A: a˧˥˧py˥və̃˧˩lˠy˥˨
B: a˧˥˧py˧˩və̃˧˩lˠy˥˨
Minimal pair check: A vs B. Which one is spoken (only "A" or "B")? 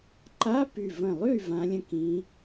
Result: B